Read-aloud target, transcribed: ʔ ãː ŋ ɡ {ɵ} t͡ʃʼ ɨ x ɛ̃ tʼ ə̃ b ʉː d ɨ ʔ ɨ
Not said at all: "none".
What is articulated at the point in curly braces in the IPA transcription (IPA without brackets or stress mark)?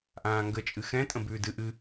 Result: ə